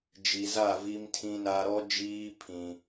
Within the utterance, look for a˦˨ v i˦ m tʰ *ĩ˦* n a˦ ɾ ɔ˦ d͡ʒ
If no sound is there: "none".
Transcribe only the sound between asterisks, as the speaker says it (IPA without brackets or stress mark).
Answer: ĩ˦